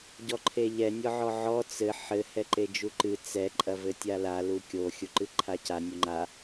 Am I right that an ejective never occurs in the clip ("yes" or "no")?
no